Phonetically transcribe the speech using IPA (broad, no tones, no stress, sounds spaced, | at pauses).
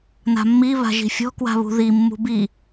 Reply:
n a̤ mː i β a̤ ʒ i̤ fʲ ɔ̤ k w a̤ β ṳ ð i mː ṳ b i